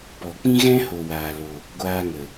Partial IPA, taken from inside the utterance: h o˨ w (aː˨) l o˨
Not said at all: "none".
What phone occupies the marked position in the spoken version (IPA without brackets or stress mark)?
aː˨